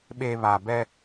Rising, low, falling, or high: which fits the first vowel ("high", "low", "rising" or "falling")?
low